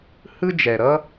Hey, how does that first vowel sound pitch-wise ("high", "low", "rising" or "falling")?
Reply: high